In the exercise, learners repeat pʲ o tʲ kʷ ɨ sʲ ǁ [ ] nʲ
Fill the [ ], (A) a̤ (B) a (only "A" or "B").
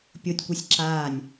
B